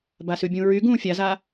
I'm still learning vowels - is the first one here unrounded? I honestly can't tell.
yes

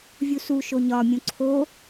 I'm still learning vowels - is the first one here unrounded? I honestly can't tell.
no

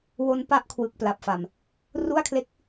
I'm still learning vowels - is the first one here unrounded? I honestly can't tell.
no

